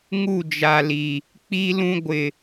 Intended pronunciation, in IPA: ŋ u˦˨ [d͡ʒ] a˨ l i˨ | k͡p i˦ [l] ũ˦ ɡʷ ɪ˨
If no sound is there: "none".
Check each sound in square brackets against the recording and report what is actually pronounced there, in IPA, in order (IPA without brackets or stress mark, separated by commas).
d͡ʒ, l